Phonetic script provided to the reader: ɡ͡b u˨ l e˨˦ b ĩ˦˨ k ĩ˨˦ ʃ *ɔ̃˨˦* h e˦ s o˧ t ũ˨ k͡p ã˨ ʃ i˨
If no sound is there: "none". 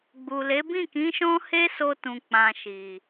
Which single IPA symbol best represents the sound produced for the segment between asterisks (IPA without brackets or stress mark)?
ɔ̃˦